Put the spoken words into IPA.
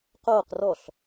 q oː q r ɔ ɬ

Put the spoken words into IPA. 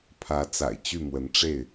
pʰ ä˨˦ t͡s a̰˨˩ ɪ̯ t͡ɕ y˥˨ m w ə˨˦ n ʈ͡ʂ e˥˨ ɪ̯

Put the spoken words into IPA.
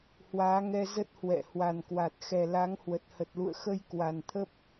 h w aː˨˦ ŋ ɛ˧ z ə˦˥ t̚ h w ɛ̰˧˨ h w a˨˩ n k w a˨˩ t̚ x ɛ˨˩ l a˨˦ ŋ h w ə˨˩ t̚ h ə˨˩ t̚ l ṵ˧˨ ə̯ x ə˧ j k w a˨˩ n t̪ʰ ə˦˥ p̚

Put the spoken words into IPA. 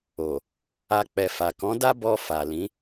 o˨ | a˧ k͡p ɛ˨ f a˨ k ɔ̃˨˦ d a˦ b ɔ˧ f a˨ l ĩ˨˦

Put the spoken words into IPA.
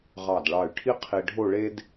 ʁ ɑ˧˩ d ɭ ɑ˧˩ y̯ ʈʰ i˥ qʰ i˧ ɖʱ o˥˧ ɭ e˥ d

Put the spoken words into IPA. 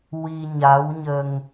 w i˧ ɲ a˧˥ w ɲ ə˧ ŋ

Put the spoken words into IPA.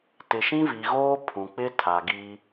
t ɪ˨ ʃ ĩ˦ v i˨ ɣ oː˦ pʰ ũ˨ k͡p ɪ˦ tʰ a˨ ɡ i˦

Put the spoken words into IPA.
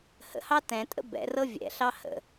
h ə̰ h ɑ t ɛ̃ tʼ ə̰ b ɛ̰ r ɤ vʲ ɛ̰ ɬ ɑ h ə̰

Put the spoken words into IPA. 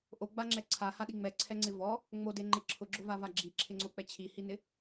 ʔ o ɡ͡b a ŋ͡ǁ ɛ ǀʰ a h a ɗ i ŋ͡m ɛ ǀʰ ɛ ŋ͡ǀ ɪ v ɔ | ŋ͡m o d e ŋ͡ǃ ɪ ǁʰ ʊ ɡ͡ǁ ʊ v a v a ɡ͡ǁ i ǁʰ ɪ ŋ͡ǀ o k͡p ɛ t͡ɕʰ i h i n ɪ

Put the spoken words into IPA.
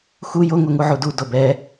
x u j o ŋ o ŋ u ʕ u d u d o b ɛ

